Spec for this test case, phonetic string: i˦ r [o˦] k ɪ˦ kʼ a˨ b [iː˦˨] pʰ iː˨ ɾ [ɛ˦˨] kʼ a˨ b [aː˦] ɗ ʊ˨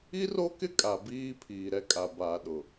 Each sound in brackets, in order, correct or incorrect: correct, incorrect: iː˦, incorrect: ɛ˦, incorrect: aː˨

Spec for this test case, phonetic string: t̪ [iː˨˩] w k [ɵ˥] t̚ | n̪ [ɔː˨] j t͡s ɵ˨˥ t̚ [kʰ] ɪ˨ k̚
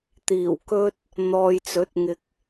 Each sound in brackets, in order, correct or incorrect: correct, incorrect: ɵ˧, correct, incorrect: ŋ

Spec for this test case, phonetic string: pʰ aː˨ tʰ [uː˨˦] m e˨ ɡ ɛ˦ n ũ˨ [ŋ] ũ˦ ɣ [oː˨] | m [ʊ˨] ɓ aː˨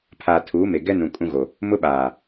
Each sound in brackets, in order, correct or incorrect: correct, incorrect: kʼ, incorrect: o˨, incorrect: ʊ˦

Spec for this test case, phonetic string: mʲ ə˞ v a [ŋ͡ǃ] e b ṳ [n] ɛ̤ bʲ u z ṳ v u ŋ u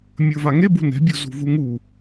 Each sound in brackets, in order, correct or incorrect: incorrect: ŋ, correct

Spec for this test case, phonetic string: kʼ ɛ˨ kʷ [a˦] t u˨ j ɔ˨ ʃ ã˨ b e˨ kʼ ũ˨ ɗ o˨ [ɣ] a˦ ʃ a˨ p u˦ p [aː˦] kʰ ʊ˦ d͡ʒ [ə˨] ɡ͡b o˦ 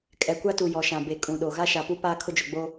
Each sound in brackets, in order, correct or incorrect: correct, correct, correct, incorrect: ʊ˨

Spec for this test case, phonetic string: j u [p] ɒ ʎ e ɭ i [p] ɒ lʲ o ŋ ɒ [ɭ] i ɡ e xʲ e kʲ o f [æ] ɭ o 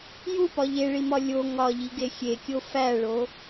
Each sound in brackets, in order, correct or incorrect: correct, incorrect: m, incorrect: ʎ, correct

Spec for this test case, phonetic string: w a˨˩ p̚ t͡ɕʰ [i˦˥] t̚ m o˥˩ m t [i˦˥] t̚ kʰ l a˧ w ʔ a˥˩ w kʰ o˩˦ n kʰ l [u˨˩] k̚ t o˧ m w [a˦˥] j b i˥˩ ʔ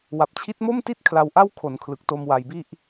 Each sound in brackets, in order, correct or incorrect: correct, incorrect: i˥˩, incorrect: ɯ˨˩, incorrect: a˧

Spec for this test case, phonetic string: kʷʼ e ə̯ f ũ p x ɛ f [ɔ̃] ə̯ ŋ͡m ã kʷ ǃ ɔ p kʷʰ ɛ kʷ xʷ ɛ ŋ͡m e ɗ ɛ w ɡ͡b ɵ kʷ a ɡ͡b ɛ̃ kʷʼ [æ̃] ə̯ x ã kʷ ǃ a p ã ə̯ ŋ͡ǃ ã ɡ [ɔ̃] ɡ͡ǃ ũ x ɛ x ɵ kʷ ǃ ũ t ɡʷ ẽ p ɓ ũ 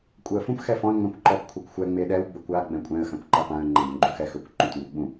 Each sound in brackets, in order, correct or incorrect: correct, incorrect: ɛ̃, correct

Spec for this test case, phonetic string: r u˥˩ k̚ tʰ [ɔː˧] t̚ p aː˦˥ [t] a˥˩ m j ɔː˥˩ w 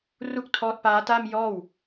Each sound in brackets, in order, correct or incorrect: incorrect: ɔː˦˥, correct

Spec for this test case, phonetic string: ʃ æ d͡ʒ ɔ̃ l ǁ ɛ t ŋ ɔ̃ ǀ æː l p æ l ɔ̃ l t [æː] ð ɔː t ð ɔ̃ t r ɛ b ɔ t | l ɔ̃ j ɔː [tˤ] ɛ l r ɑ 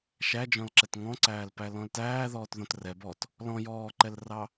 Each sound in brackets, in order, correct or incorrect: correct, incorrect: ǃ

